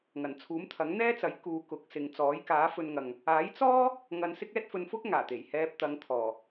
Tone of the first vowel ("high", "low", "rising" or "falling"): low